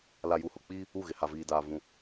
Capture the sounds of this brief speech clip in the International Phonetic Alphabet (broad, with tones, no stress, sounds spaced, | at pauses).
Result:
l a˨ j u˨ h ʊ˨ k͡p i˦ | u˦˨ ɣ ɪ˨ h a˨ v iː˨ d aː˨ v ũ˨